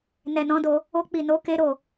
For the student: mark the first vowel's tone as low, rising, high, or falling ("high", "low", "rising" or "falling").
low